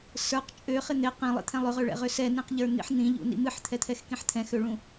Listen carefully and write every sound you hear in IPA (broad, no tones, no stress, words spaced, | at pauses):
sə˞q t͡ʃʼøχɪ n̪ɪ qĩlˠḭt̪ʰɛ̃ lˠøʁøɭɛ̰ʁø sɛnĩqʎə˞n̪ḭħ n̪ĩʎṵnḭ mɨħt̪ʰɛt̪ʰɛxkĩħ t̪ʰɛ̃xøɭũ